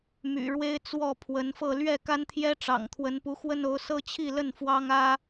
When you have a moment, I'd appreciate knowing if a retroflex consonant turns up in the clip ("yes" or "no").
yes